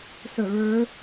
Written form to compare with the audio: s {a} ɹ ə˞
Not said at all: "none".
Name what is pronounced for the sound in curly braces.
ə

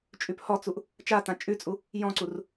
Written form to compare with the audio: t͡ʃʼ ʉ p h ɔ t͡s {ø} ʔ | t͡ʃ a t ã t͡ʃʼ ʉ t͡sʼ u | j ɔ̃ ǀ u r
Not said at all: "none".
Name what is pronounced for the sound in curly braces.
u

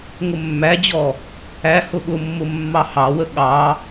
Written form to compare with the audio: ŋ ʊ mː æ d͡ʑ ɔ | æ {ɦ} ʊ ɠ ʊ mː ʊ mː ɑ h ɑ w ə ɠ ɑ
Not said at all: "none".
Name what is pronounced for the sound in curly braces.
h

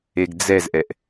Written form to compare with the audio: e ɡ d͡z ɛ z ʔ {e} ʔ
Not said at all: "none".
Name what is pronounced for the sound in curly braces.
ɛ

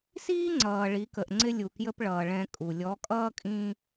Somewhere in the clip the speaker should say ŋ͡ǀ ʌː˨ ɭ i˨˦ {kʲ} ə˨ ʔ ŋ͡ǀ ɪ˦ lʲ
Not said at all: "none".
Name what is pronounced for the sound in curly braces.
k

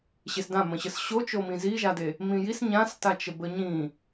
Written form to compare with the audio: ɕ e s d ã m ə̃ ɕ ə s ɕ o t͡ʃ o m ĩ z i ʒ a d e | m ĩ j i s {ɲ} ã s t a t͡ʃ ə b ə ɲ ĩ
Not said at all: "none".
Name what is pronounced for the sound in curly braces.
ɲ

